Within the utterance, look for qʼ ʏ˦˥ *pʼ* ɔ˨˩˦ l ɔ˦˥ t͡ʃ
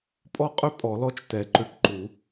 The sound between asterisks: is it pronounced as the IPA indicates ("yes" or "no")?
yes